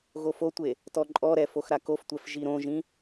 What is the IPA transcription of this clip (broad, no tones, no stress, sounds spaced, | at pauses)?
ɣ o f o tʷ e | t ɔ ǃʼ ɔ ɾ ɛ f o x ɾ a k o f tʷ ɛ f ʒ i ɾ õ ʒ ĩ